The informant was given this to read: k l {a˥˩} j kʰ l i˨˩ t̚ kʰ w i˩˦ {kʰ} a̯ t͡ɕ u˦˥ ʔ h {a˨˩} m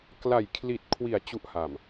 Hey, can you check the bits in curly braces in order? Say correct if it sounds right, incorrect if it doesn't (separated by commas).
incorrect, incorrect, correct